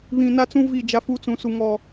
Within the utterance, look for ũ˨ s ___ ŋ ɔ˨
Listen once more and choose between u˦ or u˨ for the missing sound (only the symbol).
u˨